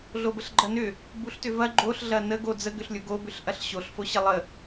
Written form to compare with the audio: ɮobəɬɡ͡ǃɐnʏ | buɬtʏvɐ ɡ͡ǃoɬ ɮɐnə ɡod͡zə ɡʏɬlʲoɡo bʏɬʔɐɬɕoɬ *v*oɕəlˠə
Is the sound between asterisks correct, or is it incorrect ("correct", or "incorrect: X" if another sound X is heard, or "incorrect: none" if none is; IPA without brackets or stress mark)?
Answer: incorrect: f